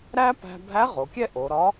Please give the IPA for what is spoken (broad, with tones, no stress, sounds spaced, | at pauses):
ɾ æ˥ p æ̤˧ bʱ æ˧˥ ʁ o˩˧ kʲ ɛ˥ ʔ o˩˧ ɾ ɒ˧˥